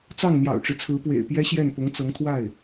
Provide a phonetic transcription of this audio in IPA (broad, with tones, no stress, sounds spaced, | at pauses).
t͡s ɑ˥˩ ŋ n̪ j ɑ̰˨˩ ʊ̯ ʈ͡ʂ ɻ̩˦ t͡sʰ ɹ̩˧˥ p w ḛ˨˩ ɪ̯ p j ɛ˥ ɕ j ɛ˥˩ n p ʊ˧˥ ŋ t͡s ɤ˧˥ ŋ t̪ʰ w a˥˩ ɪ̯